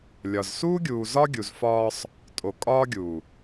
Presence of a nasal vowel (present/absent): absent